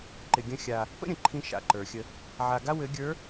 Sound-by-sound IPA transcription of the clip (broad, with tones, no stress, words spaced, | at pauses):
ǃɪ˨ɡʲə̃˦ xʲa˦ | pə̰˦ ɾʲə̃˨ǃʰĩ˦ ʃa̰˨ǃə˞˨xʲə˦ | ʕa˨ɡa˦ wɘ˨˦ɡʲə˞˨˦